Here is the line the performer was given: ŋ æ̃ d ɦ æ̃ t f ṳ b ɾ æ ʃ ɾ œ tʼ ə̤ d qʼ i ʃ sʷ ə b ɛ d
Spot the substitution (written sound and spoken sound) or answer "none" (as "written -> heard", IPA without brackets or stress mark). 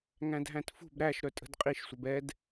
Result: none